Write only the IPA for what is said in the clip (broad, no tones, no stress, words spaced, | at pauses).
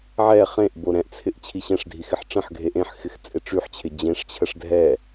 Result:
ʕɛ χẽʔbo ɾɛ̃ʔt͡sʰɪʔ t͡ɕʰiɕɛ̃ʂdʱi xɪħʈ͡ʂə̃ħɡʱe ʔẽħxɪx t͡sʼɪʈ͡ʂyħt͡ɕʰɪ d͡ʑẽʂt͡ɕʰəʂ dʱɛ